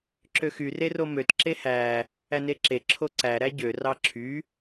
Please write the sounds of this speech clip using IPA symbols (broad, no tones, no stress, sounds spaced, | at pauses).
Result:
ǁ ø x y r e r o m ø t ǁ e h æ | æ n e ǁ e ǁʰ o ǀ æ ɾ æ ɟ ø r ɑ ǁʰ y